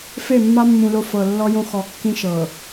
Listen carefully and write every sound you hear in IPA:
fe˦˨mːa˦mːũ˨ lo˦fɤ˨ lːɔ˦ jõ˦xɔ˨kːĩ˦ ʃɤ˨

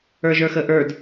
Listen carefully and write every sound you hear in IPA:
ə˞ʒə˞xəʔə˞d

